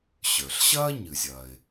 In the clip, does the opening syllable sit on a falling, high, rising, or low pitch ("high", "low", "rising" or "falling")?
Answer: low